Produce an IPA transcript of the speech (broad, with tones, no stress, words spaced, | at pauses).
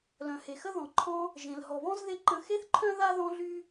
lœ̃˩he˩xə˥ ðɔ̃˩ǃʰɔ̃˦ | ʒẽ˩l ɦɔ˩βɔ̃˥zðe˦ ǃə̃˦ xe˥θǃʰœ̃˥ ða˥ðɔ̃˦ɮy˦